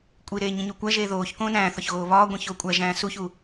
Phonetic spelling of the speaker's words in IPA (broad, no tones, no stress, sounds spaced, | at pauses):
kʷʼ i ɾ eː ɲ ĩ ɲ o kʷ æ ʒ eː ð oː ç k õː n æ̃ː θ ɒ ç ɣ oː β ɒː ɡʷ ĩ ç o kʷʼ æ ʒ æ̃ː s u ç u